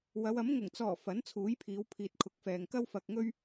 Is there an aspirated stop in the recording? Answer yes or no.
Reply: yes